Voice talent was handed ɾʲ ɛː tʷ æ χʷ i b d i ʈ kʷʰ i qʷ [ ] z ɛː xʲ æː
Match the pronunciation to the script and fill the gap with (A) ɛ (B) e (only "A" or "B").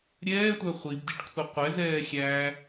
A